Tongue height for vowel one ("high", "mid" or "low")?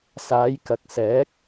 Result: low